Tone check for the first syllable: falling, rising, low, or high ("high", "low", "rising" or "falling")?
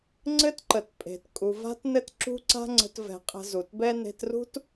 high